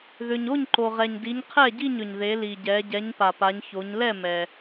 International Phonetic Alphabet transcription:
ð ʏ˩ ɲ o˥˩ ɲ ǃ o˩ ʁ ɛ˩ ɲ d i˩˧ ɲ qʰ ɛ˥˩ ɟ i˥˩ ɲ ʏ˩ ɲ ð e˩˧ l i˩ ɟ ɛ˩˧ ɟ ɛ˩˧ ɲ p a˩ p a˩˧ ɲ ç o˩˧ ɲ l ɛ˥˩ m ɛ˩

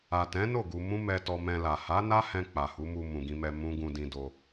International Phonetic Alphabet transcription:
a˨ t ɛ̃˨˦ n o˦˨ ɡ u˧ m ũ˦ m ɛ˧ t ɔ˧ m ɛ̃˧ l a˨ h a˨˦ n a˦ h ɛ̃˧ k͡p a˨ h u˨˦ m u˧ m ũ˨ ɡ ĩ˧ m ɛ˧ m ũ˦ ɡ ũ˧ d ĩ˧ d o˧

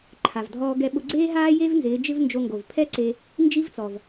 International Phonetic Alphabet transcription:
ǃʰ a˩ v dʱ ɔː˧ ɡ ɛ˧ ɓ ʊ˧ ɡ͡ǀ eː˥ ɦ aː˥ j e˥ v n z ɪː˩˧ d͡ʒ ɪ˥ v n d͡ʒ o˧ ŋ ɡ o˩ v pʰ ɛ˥ ǀ e˧ | n d͡ʒ i˥ v t͡s ɔ˩ v

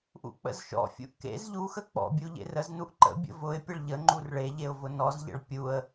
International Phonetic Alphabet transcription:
ʔ ṵ k͡p ə̰ z ʃ ɔ̰ fʲ ṵ ʔ k ḛ z ʎ u x ə k͡p ɔ̰ bʲ u ʎ ḛ r ə z n u ʔ ǃ ə̰ bʲ ə̰ v ʊ ɪ̯ pʲ ə ɭ ʎ ə ŋ͡ǃ u r ɭ e ʎ e ʊ̯ v ʊ n ɔ z ʎ ə̰ ɭ pʲ u ə̯

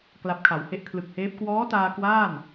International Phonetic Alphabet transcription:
k l a˦˥ p̚ kʰ a˩˦ w h e˥˩ ʔ kʰ l ɯ˨˩ k̚ h eː˦˥ p̚ k w ɔː˦˥ t aː˧ k w aː˥˩ n

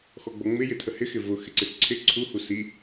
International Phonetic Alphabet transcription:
x ɔ ɡ͡b ɔ ŋ͡m ɪ j ɪ tʰ ə h ɪ x ɪ v ʊ x ɪ ǀ ɪ s ǀʰ ɪ ǀʰ u h u s i

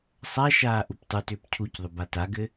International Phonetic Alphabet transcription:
sˤ a ʃ aː ʔ u p tˤ u t ʏː p cʰ u c ðˤ ʏ b a t a ɡ ɘ

